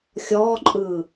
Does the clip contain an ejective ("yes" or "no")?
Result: yes